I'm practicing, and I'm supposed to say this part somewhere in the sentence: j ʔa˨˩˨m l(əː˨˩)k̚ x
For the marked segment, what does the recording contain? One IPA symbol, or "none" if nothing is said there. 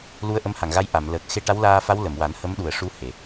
əː˨˩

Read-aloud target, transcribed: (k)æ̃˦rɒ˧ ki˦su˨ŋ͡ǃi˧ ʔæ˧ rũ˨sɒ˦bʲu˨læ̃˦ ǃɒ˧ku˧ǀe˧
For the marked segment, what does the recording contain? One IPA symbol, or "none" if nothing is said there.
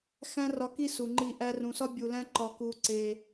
x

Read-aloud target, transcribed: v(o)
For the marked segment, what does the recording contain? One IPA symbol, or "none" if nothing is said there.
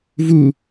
u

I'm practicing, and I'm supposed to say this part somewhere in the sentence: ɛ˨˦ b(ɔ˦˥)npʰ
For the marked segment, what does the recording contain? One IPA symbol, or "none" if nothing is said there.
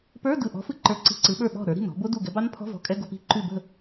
ɑ˦˥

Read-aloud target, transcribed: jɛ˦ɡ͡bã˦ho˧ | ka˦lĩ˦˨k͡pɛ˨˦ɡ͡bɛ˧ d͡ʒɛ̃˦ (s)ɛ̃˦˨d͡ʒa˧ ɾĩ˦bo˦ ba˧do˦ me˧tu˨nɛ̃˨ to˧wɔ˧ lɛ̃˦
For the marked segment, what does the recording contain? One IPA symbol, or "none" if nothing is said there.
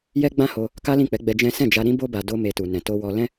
s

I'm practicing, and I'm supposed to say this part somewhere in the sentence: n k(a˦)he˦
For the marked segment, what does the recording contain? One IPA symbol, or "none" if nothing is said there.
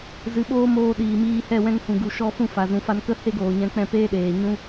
ə˦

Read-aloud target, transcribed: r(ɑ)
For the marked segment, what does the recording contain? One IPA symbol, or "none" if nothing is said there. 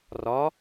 ɒ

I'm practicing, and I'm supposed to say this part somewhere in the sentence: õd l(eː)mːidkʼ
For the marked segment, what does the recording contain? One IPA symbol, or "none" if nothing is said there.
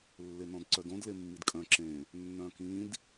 e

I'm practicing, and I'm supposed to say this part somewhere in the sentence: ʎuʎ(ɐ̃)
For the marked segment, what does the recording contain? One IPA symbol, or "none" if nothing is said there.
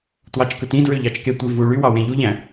æ̃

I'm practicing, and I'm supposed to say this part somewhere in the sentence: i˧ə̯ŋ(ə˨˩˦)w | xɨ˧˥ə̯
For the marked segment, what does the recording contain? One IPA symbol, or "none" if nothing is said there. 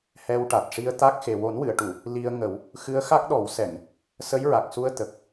ə˨˩˦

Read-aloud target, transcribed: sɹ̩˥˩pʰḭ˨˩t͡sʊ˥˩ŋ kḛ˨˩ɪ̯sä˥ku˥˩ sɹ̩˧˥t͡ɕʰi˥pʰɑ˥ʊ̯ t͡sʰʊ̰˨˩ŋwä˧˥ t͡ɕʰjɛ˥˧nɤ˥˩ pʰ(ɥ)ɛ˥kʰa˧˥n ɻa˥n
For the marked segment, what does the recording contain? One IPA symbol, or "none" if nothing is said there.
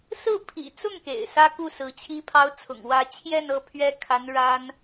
ɥ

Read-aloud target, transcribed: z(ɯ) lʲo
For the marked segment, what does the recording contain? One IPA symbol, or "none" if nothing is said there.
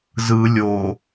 ɯ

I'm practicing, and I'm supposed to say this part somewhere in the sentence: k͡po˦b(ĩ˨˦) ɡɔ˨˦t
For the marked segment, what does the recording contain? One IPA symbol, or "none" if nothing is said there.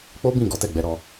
ĩ˦˨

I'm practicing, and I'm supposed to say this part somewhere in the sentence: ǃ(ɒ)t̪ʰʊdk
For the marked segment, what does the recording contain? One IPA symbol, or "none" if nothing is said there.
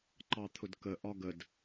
ɑ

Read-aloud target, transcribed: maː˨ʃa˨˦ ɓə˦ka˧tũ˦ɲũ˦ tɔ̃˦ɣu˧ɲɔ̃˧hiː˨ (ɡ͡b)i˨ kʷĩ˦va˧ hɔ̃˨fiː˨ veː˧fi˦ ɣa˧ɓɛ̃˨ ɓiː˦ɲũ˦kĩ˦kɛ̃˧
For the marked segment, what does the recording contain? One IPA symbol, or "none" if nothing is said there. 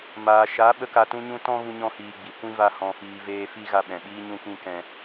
ɡ͡b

